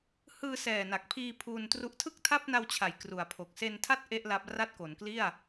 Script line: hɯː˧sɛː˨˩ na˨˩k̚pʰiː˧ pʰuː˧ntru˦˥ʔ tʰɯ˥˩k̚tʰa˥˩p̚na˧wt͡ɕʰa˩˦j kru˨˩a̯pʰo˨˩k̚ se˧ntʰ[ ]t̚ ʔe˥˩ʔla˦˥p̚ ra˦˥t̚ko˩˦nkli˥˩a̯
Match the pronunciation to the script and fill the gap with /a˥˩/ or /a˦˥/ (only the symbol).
a˥˩